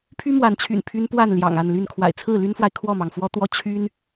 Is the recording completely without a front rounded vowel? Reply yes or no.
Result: no